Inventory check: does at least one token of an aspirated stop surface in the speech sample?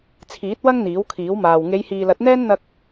yes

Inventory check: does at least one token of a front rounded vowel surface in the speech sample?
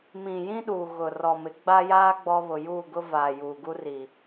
no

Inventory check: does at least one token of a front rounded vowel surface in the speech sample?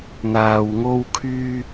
yes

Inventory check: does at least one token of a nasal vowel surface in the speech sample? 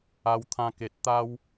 yes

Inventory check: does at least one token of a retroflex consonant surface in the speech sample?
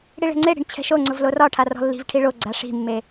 yes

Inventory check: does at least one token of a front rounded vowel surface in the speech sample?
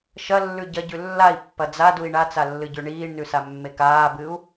no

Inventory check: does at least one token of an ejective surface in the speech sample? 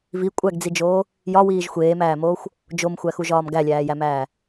yes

